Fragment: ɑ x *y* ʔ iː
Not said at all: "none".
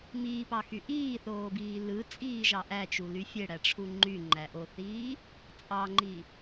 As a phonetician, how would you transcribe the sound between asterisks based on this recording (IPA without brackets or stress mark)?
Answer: y